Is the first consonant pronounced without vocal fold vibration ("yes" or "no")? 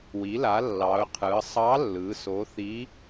no